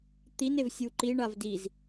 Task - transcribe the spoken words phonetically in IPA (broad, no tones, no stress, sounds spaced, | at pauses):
t̪ i n e v sʲ u ǃ i ɳ a v d i z